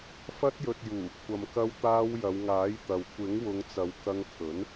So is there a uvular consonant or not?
no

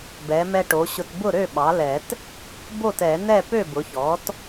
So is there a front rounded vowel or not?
yes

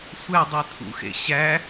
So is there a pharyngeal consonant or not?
no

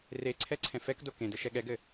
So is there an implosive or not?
yes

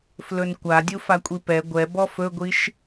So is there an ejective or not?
yes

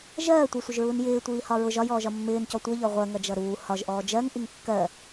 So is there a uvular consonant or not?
yes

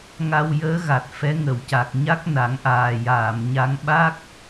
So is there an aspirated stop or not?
no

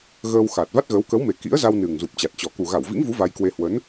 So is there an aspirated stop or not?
no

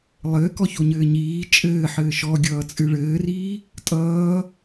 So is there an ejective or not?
yes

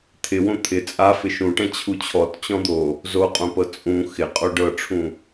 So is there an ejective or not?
yes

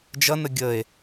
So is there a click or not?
no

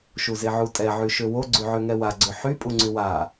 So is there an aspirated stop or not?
no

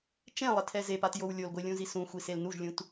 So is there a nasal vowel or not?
yes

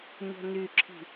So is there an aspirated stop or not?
yes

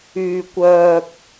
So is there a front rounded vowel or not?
yes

